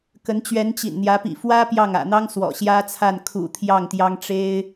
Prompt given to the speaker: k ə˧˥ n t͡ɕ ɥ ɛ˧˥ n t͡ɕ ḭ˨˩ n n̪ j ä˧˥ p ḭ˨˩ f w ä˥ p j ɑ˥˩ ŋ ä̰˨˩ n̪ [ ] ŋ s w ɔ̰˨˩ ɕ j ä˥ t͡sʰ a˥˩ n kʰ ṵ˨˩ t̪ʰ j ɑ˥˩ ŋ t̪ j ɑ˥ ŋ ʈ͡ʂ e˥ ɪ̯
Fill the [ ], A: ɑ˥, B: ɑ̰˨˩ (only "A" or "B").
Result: A